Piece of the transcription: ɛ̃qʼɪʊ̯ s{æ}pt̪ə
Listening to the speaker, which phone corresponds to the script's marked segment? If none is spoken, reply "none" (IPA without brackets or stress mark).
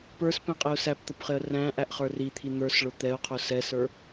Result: æ